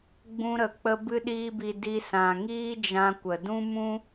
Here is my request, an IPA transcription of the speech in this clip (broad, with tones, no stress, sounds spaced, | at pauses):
ɡ͡b ũ˧ ɾ ə˨ k͡p ə˦ b ɨ˦ ɗ iː˦ b i˧ d i˧ s ã˨ ŋ iː˦ d͡ʒ ã˧ kʷ ə˨ d ũ˦ m ũ˦